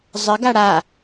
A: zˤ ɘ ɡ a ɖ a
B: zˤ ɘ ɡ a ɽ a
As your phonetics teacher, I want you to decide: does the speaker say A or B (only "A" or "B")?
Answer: B